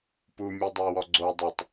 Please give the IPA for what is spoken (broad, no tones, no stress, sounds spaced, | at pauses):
p u mʲ u dˤ ɤ w ɔ ɡ͡ǀ o dˤ e tˤ